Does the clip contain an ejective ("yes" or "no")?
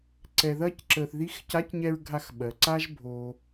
no